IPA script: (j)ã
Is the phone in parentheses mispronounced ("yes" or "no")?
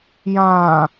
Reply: no